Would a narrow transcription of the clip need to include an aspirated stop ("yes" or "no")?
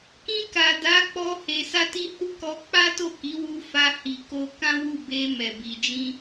no